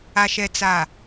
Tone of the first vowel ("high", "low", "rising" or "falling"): low